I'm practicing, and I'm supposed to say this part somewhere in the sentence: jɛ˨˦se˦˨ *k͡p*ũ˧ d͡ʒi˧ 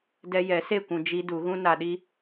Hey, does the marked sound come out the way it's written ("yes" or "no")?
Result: no